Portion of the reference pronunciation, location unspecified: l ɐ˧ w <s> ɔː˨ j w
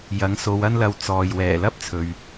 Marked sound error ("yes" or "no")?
yes